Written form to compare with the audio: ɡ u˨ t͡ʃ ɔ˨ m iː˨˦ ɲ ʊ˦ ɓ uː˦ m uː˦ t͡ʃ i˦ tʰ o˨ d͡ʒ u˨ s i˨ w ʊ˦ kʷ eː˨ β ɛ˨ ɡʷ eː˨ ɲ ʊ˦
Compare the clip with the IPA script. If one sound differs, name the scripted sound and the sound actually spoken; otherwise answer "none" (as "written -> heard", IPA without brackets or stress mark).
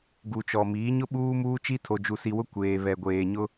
none